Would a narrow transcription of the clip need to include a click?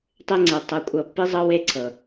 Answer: yes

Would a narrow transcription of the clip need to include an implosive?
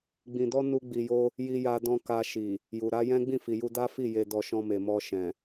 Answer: no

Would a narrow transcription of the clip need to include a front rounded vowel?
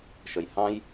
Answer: no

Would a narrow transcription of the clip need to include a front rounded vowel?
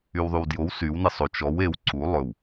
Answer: yes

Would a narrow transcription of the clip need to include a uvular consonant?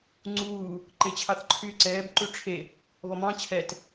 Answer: no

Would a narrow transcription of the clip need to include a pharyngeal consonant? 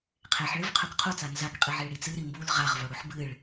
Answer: yes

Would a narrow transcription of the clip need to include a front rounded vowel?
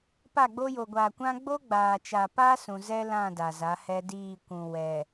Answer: no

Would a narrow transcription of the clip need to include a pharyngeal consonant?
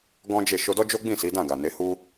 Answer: no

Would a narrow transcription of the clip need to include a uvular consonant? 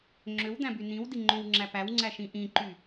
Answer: no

